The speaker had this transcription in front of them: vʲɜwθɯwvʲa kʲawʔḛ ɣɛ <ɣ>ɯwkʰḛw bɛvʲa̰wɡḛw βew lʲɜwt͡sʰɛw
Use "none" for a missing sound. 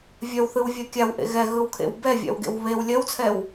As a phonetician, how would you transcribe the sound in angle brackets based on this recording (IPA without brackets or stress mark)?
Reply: ɣ